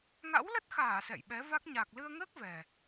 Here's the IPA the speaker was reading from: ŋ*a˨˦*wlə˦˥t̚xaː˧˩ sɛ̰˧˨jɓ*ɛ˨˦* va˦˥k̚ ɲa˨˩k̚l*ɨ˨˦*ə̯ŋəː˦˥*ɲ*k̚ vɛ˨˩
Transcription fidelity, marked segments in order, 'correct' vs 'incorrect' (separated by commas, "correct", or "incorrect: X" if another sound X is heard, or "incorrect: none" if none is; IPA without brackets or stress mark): incorrect: a̰˧˥, correct, incorrect: ɨ˧, incorrect: none